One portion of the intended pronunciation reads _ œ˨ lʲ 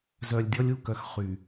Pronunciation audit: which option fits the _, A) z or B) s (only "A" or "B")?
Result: A